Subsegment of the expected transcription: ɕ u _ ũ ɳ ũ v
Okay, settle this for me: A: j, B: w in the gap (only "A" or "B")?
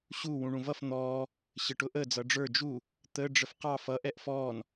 B